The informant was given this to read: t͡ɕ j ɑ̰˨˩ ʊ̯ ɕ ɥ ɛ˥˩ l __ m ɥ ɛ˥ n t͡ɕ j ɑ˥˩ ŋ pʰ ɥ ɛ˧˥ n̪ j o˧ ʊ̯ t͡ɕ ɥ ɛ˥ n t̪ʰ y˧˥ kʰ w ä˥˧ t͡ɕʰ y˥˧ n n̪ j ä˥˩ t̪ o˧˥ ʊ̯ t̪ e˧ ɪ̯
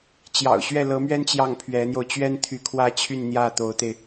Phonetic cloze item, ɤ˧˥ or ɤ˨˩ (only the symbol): ɤ˧˥